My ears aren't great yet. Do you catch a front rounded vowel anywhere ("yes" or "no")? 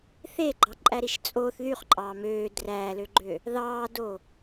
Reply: yes